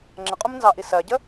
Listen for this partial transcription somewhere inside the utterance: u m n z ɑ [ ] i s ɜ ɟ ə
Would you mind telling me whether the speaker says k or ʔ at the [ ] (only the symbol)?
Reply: ʔ